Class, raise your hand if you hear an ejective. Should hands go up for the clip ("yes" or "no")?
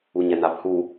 no